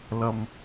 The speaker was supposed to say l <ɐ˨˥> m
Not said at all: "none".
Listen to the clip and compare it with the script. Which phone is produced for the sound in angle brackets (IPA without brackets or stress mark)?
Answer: ɐ˨